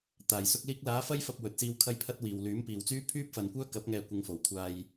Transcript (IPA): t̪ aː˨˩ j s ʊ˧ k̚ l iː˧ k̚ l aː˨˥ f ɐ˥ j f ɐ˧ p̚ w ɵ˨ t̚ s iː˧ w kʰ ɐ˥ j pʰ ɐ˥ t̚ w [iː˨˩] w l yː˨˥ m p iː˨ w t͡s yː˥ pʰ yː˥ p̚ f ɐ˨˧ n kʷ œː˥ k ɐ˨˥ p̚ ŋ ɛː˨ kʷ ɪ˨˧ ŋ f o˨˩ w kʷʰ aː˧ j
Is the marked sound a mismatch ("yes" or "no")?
yes